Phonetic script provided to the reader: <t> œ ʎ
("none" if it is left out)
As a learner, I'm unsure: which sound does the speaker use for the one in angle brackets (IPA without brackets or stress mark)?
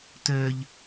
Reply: t